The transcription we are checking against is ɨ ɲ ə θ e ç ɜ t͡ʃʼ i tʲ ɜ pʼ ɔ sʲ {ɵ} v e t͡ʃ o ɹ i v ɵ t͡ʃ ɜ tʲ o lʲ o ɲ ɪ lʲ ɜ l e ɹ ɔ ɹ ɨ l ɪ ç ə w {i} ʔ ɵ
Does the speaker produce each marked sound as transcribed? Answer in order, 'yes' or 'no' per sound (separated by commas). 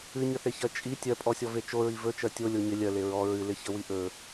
no, yes